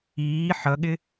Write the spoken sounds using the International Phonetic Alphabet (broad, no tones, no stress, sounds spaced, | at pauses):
iː ħ ʌ ɠ ɪ